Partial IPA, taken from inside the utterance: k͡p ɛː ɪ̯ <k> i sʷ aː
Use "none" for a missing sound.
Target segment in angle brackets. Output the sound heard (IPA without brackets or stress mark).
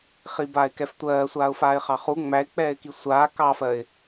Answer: k